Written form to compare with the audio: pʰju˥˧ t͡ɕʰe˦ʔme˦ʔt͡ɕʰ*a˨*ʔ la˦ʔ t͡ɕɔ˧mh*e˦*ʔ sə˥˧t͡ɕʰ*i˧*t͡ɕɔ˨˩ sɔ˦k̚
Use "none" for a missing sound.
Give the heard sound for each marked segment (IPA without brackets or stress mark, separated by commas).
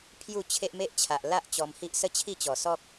a˨, i˦, i˥˧